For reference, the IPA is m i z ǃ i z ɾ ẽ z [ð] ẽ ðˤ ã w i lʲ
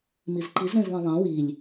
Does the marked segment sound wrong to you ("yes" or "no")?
no